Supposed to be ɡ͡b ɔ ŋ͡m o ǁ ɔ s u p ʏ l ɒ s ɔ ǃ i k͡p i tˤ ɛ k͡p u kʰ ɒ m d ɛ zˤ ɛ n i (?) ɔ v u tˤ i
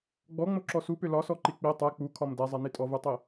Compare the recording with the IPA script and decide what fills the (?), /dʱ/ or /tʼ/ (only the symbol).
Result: tʼ